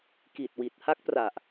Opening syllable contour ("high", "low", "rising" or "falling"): low